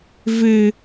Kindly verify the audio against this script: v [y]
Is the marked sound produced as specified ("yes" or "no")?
no